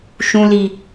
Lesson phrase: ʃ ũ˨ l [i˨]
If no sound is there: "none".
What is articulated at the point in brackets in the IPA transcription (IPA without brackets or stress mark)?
i˨